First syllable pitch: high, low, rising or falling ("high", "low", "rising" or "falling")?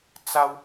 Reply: high